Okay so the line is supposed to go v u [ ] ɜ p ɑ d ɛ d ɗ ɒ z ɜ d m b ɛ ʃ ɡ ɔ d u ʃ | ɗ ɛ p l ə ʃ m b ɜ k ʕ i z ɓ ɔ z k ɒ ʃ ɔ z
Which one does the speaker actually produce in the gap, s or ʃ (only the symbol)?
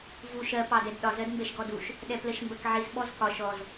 ʃ